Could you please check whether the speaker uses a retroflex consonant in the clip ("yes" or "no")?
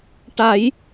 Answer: yes